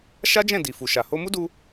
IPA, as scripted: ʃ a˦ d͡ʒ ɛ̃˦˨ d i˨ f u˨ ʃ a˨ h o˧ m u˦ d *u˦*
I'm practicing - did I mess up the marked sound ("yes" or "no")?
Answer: yes